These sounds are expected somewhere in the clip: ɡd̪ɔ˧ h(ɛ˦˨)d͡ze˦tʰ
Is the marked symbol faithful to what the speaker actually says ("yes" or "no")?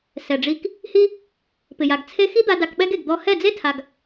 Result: yes